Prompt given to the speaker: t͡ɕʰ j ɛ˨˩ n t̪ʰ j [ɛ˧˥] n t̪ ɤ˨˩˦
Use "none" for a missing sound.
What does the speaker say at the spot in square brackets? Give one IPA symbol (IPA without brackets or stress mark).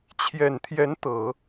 ɛ˧˥